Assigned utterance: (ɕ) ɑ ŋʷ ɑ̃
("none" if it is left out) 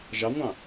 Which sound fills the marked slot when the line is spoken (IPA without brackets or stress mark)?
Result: ʒ